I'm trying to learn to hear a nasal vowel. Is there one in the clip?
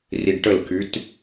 no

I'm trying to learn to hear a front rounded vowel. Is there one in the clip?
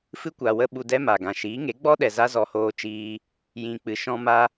no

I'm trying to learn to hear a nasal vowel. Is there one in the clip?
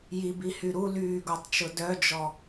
no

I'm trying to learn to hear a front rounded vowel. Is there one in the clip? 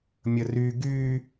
yes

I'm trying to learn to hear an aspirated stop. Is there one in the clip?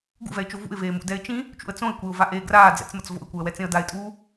no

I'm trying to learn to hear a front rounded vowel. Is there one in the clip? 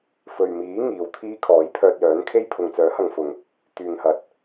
yes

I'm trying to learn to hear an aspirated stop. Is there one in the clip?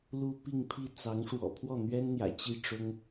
yes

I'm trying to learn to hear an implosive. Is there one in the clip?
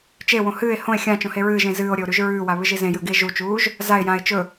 no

